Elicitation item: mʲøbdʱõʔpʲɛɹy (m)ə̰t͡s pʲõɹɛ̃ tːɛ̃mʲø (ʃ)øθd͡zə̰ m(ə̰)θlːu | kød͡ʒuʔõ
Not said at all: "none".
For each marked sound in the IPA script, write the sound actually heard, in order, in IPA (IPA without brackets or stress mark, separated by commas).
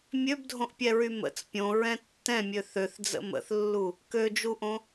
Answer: m, θ, ə̰